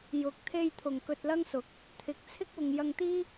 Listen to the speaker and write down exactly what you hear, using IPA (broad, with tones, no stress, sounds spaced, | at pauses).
j ʊ˨˥ k̚ t̪ʰ e˧ j t̪ʰ ʊ˨˩ ŋ k ɵ˧ t̚ l ɐ˥ ŋ s ʊ˨˥ k̚ | t̪ʰ ɪ˨˥ k̚ t͡sʰ ɪ˥ k̚ w ʊ˨ ŋ j ɐ˧ ŋ t̪ iː˥